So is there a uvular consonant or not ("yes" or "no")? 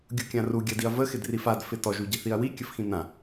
no